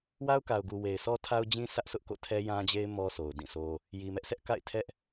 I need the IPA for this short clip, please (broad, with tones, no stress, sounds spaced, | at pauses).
w a˦ ʊ̯ k a˨ ʊ̯ ɡ u˨ w e˨ ɪ̯ s ɔ˦ tʰ a˦ ʊ̯ d͡ʑ ĩ˦ sʰ ä˦ ʔ sʰ ʊ˦ ʔ k o̰˦˨ tʰ ɛ˦ j ã˦ d͡ʑ e˦ ɪ̯ m ɔ˦ sʰ o˨ ʊ̯ d ĩ˦˨ s o˦ | j i˨ m ɛ˦ ʔ sʰ ɛ˦ ʔ k a̰˦˨ ɪ̯ tʰ ɛ˦ ʔ